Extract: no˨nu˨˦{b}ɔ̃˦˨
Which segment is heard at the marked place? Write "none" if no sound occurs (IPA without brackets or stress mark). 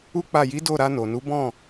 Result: b